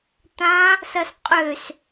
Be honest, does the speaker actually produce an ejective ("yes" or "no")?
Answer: yes